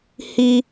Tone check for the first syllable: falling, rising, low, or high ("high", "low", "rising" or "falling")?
high